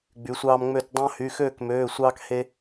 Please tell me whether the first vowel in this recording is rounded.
yes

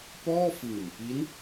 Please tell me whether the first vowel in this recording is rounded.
yes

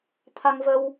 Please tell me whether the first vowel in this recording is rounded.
no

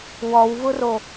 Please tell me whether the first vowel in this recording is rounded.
yes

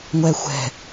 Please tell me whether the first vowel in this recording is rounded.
no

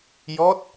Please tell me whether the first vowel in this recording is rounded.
yes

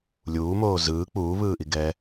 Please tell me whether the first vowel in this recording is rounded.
yes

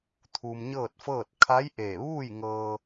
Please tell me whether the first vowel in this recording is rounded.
yes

